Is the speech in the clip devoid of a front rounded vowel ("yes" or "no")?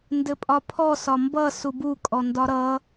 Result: yes